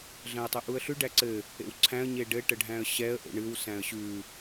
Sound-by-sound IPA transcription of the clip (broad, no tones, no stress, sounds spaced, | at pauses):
ɮ æ̃ ə̯ tˤ ə ʔ u ə̯ ɬ ʉ ɖ æ ǀ ɘ | ḛ w ǀʰ æ̃ ə̯ ɲ e ɖ ɘ ʈ ə ɖʱ æ̃ ə̯ ɕ ɛ ə̯ ʔ ḛ ɳ ɨ w s æ̃ ə̯ ɕ ʉ